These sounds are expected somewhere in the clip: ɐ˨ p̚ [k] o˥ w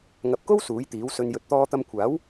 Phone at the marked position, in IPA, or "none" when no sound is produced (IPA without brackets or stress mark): k